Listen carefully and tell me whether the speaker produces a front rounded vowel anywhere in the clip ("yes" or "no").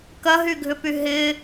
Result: yes